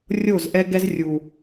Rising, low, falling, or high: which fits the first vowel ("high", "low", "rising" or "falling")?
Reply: falling